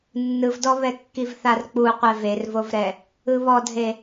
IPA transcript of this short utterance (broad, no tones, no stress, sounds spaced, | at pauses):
nː ɯ v d ɔ β ɛ kː i v θ a r k͡p u qʷ ɛ v e r v o v ɾ ɛ | ɯ β ɔ dʱ e